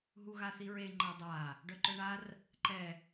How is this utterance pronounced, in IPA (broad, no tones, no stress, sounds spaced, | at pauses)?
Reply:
ɦ u ɣ a θ i ɹ e ŋ͡ǃ a dˤ a | ɖ œ ǃ œ ɳ a r | ǃ ɛ